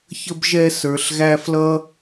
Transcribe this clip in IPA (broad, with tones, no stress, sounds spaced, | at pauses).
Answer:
ç ə˦ b ʒ ɛ˦ s ə˞˧ ɬ ɣ æ˦ f l ʌ˦